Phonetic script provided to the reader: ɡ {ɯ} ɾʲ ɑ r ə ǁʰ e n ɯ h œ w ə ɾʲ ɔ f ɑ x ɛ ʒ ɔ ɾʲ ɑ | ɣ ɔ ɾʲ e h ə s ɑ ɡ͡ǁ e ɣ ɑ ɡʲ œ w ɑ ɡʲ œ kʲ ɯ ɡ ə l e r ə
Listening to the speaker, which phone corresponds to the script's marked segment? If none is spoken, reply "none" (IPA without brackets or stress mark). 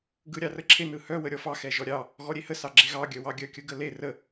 ɯ